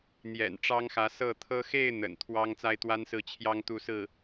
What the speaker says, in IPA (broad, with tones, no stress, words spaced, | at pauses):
n̪jɛ̰˨˩nʈ͡ʂɑ˥ŋxä˧˥ sɤ˥˩t̪ʰɤ˥ xe˥˩ɪ̯ n̪ə̰˨˩n t̪ʰwɑ˥ŋ t͡sa˥ɪ̯t̪wa˥nsɹ̩˥˩ t͡ɕʰjɑ˥ŋt̪u˥˧sɹ̩˥˩